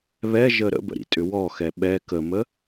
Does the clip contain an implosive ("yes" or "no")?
yes